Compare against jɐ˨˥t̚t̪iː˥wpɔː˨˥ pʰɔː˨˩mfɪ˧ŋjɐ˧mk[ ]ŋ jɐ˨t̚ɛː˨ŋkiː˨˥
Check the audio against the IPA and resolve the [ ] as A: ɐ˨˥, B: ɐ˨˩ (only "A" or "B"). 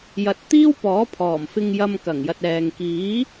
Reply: B